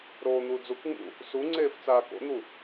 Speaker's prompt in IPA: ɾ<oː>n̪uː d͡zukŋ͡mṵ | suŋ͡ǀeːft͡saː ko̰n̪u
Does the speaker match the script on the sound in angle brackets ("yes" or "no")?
yes